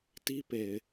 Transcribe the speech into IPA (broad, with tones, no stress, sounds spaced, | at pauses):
t i˦ p e˨ ɪ̯